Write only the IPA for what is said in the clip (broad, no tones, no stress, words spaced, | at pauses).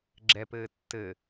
ɡ͡ǁɛpɘː tːɘ